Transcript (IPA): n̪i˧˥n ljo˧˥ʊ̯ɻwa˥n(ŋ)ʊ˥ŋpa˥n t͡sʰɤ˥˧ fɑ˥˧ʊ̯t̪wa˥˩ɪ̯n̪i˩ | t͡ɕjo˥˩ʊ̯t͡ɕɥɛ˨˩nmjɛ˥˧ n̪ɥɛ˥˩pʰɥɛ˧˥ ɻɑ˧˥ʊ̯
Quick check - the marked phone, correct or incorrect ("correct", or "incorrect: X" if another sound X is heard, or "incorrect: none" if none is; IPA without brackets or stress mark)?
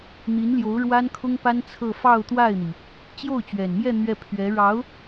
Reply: incorrect: kʰ